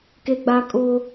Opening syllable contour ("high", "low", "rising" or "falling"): high